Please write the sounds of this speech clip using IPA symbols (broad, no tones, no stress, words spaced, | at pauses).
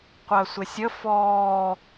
qʷɜsʷɪsʲə fɔː